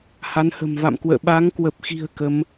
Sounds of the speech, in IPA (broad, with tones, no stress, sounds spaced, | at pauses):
h a˨˦ n h ə̤˨˩ m v a̰˧˨ m k w ə̰ː˧˨ ɓ a˨˦ ŋ k w ə˨˩ p̚ x i̤˨˩ ə̯ k ə˨˦ m